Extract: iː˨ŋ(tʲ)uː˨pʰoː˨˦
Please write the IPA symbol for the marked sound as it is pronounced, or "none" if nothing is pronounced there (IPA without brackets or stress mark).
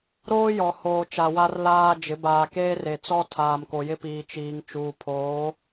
t͡ʃ